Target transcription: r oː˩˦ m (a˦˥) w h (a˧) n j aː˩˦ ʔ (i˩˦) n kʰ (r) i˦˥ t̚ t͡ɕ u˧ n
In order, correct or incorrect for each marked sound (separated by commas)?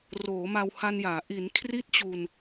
incorrect, correct, correct, correct